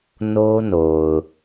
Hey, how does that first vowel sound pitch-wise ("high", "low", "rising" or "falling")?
high